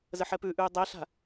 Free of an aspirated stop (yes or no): yes